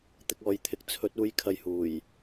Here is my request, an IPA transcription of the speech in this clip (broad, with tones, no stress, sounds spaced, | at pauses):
t̪ ɪ˧ k̚ ɔː˨ j t̪ʰ ɪ˨˥ k̚ t͡sʰ ɵ˨˥ t̚ uː˨˧ j kʰ ɐ˨ j h uː˨˩ j